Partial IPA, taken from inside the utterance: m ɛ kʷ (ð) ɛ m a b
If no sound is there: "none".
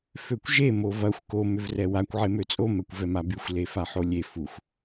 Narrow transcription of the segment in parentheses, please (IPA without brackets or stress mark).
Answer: v